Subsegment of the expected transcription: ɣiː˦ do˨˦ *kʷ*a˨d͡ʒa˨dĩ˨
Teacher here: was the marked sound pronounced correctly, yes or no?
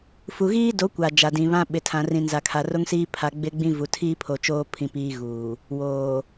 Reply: yes